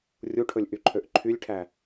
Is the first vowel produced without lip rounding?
no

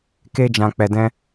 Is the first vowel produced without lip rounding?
yes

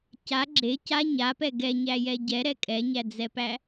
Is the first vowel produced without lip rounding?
yes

